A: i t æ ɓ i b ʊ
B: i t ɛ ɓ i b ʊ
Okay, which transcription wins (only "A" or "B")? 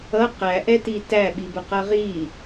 A